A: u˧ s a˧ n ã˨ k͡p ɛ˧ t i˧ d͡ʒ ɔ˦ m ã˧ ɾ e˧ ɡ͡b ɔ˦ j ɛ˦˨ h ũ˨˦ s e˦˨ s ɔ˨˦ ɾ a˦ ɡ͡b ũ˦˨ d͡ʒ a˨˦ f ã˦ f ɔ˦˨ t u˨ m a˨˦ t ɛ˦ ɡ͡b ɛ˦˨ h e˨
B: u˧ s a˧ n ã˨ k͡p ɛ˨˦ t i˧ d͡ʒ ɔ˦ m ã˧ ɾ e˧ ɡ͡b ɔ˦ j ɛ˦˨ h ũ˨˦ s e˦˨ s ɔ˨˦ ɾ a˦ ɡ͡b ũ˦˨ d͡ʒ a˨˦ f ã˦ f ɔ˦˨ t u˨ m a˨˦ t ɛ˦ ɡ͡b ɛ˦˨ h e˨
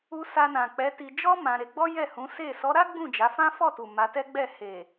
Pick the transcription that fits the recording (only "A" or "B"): B